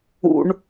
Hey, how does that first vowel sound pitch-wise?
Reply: low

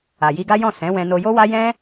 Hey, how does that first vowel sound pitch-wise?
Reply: low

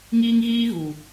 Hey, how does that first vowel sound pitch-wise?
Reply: high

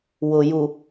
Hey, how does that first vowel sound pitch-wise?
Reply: low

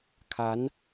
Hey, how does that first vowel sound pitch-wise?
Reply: rising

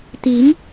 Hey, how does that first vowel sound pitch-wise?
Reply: rising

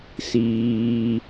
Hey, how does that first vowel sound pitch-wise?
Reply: low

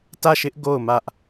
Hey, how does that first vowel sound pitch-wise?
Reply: falling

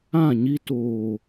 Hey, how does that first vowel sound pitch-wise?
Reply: falling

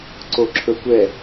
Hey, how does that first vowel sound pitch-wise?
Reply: low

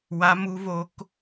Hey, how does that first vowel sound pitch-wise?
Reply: rising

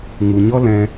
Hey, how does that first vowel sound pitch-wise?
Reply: low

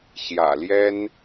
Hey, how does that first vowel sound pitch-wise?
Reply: low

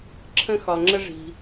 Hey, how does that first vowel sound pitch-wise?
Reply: high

